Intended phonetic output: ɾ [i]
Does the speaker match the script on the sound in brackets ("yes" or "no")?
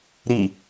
yes